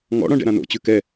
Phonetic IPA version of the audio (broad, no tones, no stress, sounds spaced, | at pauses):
ŋ ɔ̰ ɽ ɔ̃ ɖ ɛ̰ ɾ ã n o̰ t͡ɕ ʉ k ɛ